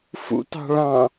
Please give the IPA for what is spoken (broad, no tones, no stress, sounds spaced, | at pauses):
f ṵ t ɑ̤ ɭ ɑ̃